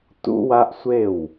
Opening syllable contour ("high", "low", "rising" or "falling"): high